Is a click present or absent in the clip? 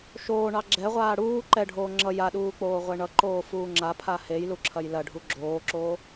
present